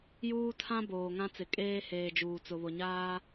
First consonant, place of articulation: palatal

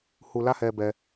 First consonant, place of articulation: glottal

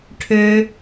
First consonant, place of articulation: retroflex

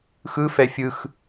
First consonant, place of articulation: velar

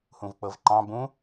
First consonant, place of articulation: glottal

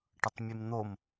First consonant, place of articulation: retroflex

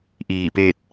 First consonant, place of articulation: glottal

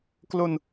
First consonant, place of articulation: velar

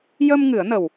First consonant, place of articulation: palatal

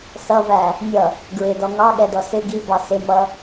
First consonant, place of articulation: alveolar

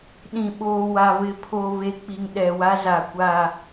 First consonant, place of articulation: alveolar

